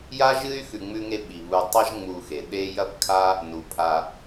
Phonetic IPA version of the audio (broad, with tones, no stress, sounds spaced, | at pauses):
j a˦ ʒ ɨ˦ y̯ x ʉ˧ ŋ͡m ʉ˦ ŋ e˦ ɓ i˨ β u˧ tˤ ɐ˦ ʒ ŋ͡m u˧ x e˨ ɗ e˦ j ɐ˦ p kʰ a˦ | n u˨ pʰ a˧